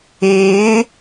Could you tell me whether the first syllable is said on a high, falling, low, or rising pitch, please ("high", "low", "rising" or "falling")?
rising